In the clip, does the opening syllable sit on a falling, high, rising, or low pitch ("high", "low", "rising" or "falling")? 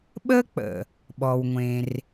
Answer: high